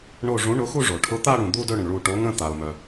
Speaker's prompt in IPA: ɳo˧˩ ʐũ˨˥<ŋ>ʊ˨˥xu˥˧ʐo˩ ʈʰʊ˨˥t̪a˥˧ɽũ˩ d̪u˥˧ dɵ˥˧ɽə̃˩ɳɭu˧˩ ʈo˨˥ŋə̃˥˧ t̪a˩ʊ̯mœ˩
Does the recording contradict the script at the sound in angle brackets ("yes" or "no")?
yes